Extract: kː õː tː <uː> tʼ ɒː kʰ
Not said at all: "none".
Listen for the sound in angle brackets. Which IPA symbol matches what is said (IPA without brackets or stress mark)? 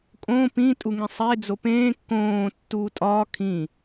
uː